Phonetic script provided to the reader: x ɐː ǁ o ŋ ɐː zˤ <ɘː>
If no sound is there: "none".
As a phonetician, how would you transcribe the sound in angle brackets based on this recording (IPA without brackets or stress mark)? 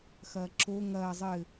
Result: ɘː